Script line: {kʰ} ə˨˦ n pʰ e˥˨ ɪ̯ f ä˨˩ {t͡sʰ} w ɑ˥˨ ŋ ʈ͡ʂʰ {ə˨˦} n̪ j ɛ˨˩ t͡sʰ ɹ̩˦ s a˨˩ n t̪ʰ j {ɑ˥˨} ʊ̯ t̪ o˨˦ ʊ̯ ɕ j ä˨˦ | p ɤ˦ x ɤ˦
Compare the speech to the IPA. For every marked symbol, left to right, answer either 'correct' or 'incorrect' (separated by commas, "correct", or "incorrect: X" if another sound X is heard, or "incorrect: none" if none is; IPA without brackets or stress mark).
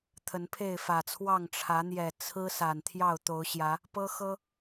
incorrect: t̪ʰ, correct, incorrect: ä˨˦, correct